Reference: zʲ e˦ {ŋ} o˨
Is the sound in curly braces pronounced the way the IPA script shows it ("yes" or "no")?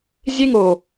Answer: yes